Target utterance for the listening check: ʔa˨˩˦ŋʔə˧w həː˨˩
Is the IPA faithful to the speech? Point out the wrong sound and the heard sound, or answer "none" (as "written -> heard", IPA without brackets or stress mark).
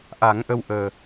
h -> ʔ